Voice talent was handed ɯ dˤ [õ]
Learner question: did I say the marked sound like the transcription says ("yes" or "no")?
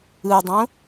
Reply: yes